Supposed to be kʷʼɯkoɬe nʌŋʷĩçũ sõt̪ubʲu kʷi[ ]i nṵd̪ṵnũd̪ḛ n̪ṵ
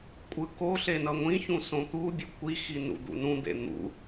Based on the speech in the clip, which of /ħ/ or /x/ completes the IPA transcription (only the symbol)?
x